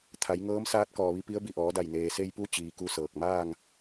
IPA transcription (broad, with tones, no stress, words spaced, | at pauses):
t̪ʰa˩˧jŋɤː˧˥msaː˧˥t̚ kɔː˩ʋi˧ pi˧˥ə̯bi˧˩ʔɔː˩˧da˧˩j neː˩se˧jpu˧ t͡ɕiː˩ku˥˨sɤː˧˩k̚ maː˥˨ŋ